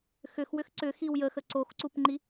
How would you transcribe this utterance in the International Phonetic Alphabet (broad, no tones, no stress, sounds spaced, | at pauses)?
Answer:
x ʏ x w ʏ x ǀ ʏ x i w j ə x ə ǀ o x ǀ u p ŋ͡ǃ i